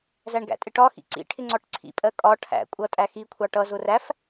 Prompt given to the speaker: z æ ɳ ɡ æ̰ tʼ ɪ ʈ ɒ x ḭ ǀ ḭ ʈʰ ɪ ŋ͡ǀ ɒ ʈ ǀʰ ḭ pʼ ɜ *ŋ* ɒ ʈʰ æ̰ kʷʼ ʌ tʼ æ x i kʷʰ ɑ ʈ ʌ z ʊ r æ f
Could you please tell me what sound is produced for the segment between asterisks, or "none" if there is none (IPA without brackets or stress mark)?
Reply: kʼ